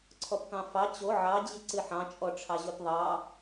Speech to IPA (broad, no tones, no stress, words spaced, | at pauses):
ǀʰɔpkɑ̃fɑ t͡ɕo ʕɑd͡ʑɨ ǀɨħɑ̃t͡ʃʼɔ ʈ͡ʂʰɑʑotðˤɑ